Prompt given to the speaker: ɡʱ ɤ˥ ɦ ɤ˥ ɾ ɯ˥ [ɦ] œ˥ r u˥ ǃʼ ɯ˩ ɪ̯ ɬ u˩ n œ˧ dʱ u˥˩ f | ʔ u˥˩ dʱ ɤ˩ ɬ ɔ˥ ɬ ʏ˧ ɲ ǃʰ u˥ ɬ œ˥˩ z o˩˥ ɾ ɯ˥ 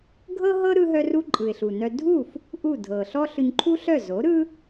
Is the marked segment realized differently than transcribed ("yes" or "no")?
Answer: no